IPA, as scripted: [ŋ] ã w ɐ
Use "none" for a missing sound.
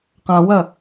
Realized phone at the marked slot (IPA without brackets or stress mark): q